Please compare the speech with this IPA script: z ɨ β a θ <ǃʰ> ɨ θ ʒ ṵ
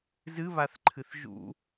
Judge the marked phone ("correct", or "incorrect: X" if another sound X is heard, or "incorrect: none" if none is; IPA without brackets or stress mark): correct